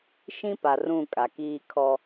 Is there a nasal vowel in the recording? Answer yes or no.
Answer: yes